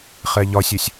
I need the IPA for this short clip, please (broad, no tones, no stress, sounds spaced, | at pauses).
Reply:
χ ɛ ʎ ɒ sʲ ɐ sʲ